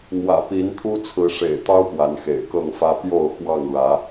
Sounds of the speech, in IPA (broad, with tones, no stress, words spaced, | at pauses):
n̪wä̰˨˩pi˨˦nt̪ʰu˦ t͡sʰɹ̩˨˦ʂḛ˨˩ɪ̯t̪ɑ˦ʊ̯ pwa˨˦nxḛ˨˩ɪ̯kɤ˥˨ŋfä˦ pjo˥˨ʊ̯xwɑ˥˨ŋɻä˨˦